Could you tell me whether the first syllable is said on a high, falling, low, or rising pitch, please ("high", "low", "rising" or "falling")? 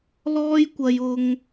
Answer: high